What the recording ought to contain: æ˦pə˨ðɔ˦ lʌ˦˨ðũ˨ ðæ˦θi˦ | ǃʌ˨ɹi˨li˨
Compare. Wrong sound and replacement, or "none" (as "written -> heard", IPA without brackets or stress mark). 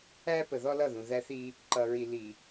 none